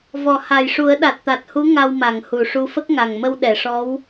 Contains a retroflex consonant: yes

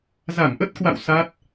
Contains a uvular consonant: no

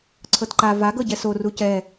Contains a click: yes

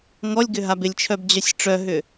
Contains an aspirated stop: yes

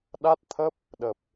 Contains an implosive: yes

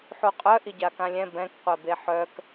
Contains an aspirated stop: no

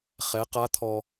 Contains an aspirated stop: yes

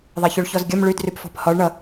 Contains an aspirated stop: no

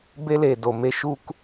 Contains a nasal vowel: no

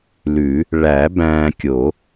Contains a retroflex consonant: yes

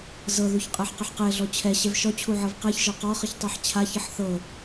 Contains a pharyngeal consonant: yes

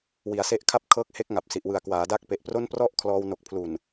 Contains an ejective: no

